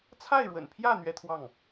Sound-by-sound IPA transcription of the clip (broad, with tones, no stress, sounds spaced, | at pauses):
t͡sʰ a˥˩ ɪ̯ ɻ w ə̰˨˩ n pʰ j ä˥˩ n̪ ɥ ɛ˥ t̪ʰ w ɑ˥˩ ŋ